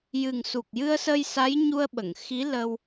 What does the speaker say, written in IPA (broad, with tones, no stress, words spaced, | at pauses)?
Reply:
jɨ˨˩ŋsu˨˩k̚jɨ˧ə̯sə˧j sa˧˥jɲu˧ə̯ɓə˨˩˨ŋxi˧˥ lə˧w